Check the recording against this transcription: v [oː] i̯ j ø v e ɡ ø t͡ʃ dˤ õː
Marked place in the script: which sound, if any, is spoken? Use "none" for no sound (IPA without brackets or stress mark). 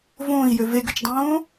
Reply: õː